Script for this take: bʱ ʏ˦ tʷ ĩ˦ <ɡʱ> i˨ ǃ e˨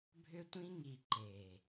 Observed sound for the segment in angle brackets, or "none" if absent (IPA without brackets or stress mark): ŋ